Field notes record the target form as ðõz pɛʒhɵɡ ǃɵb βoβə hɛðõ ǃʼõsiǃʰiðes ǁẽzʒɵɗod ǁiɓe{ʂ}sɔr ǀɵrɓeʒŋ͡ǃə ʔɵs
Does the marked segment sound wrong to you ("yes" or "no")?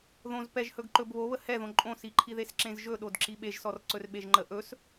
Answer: yes